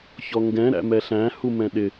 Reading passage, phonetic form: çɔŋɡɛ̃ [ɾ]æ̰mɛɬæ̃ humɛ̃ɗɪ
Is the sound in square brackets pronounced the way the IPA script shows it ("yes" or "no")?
yes